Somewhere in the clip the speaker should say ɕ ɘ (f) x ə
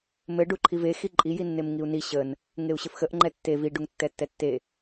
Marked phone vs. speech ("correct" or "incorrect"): correct